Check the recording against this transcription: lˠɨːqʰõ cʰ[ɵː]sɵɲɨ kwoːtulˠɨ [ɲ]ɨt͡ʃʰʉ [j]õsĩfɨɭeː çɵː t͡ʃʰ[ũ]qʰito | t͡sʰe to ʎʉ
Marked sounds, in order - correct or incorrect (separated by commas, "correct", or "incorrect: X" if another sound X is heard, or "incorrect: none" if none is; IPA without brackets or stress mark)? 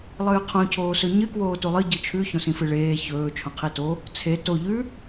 incorrect: oː, incorrect: ɟ, incorrect: ç, incorrect: õ